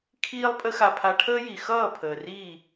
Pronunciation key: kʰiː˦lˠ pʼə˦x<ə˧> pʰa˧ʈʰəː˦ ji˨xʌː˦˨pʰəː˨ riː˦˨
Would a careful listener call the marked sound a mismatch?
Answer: yes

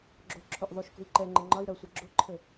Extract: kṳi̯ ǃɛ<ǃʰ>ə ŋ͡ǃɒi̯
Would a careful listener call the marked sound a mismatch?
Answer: yes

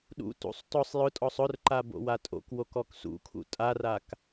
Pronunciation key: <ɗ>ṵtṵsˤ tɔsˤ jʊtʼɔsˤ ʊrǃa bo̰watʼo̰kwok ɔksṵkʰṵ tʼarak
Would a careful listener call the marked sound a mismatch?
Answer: no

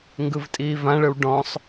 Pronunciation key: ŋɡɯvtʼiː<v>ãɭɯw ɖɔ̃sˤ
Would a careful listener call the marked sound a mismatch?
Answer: no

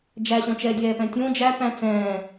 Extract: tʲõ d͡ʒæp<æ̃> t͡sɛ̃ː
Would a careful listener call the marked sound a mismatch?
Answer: no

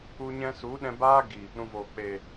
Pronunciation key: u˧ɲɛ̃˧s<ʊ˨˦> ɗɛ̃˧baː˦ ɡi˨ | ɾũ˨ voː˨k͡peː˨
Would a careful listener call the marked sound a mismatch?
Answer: yes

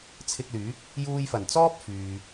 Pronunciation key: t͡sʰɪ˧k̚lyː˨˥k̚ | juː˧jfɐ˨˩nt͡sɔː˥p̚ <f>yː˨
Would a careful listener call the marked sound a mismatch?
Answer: no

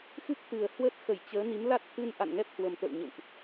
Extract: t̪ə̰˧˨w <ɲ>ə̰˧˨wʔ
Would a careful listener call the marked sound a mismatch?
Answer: no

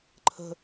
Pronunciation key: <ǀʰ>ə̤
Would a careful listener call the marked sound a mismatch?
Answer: yes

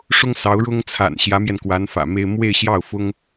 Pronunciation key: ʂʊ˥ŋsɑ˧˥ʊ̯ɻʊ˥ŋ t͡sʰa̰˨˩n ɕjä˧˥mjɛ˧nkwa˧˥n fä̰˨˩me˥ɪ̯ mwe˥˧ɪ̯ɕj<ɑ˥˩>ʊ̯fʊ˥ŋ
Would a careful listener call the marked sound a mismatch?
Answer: no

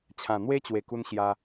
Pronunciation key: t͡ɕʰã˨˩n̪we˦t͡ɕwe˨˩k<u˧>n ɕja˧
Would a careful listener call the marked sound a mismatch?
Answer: no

